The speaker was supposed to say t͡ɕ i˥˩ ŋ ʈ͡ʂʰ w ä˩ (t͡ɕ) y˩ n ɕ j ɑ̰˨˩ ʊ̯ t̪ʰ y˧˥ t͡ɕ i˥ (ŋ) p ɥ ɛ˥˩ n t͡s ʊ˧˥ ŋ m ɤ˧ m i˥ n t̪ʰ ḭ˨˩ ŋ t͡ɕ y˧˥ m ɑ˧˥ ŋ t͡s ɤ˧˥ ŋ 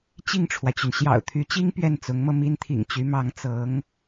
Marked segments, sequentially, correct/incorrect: correct, correct

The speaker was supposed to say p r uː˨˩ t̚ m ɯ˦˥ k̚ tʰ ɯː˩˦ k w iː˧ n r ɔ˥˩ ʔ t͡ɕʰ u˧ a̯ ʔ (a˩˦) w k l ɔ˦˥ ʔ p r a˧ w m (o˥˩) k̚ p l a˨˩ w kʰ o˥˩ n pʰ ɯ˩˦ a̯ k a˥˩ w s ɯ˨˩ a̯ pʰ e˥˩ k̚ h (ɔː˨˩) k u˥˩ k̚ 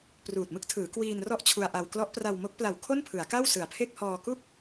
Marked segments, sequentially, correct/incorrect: incorrect, incorrect, incorrect

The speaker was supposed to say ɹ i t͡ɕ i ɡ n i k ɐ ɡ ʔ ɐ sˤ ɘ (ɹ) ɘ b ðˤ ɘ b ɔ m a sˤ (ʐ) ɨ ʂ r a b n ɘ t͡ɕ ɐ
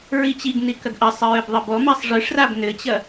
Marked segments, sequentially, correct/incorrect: correct, correct

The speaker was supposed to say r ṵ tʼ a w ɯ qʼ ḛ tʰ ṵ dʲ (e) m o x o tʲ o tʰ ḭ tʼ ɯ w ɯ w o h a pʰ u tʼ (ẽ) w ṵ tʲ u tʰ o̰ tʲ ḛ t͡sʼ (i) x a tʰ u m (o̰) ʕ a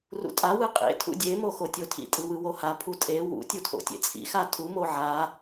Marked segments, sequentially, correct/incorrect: correct, incorrect, incorrect, incorrect

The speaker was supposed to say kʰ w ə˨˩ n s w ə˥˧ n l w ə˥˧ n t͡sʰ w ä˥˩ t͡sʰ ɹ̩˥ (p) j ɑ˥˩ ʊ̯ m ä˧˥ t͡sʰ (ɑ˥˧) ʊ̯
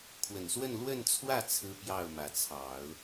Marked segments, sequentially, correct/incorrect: correct, incorrect

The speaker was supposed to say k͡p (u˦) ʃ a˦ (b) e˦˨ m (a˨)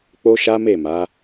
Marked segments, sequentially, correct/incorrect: incorrect, incorrect, incorrect

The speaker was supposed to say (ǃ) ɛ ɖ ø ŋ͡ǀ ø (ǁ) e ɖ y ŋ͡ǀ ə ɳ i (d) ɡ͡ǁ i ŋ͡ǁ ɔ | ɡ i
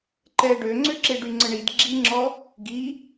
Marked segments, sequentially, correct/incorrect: correct, correct, correct

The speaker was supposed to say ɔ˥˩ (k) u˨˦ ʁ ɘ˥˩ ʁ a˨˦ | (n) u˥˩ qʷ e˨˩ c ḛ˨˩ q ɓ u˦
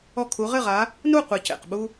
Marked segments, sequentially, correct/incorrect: incorrect, correct

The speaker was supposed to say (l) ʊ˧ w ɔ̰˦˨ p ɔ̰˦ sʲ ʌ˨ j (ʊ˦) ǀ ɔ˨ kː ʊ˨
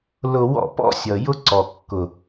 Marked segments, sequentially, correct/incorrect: correct, correct

